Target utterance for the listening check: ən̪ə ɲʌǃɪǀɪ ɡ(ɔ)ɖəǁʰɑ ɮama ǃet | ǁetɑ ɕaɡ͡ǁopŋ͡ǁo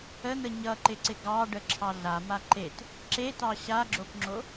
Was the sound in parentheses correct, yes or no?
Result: no